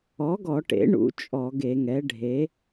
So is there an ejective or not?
yes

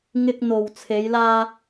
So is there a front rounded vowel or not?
no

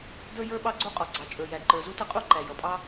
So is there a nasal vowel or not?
no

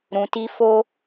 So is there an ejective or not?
no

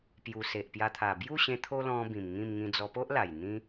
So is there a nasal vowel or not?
yes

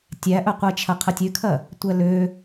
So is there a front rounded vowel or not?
yes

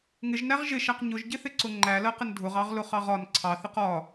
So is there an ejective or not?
no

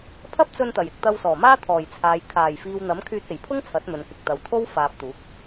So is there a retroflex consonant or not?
no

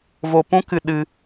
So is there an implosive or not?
yes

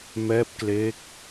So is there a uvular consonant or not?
no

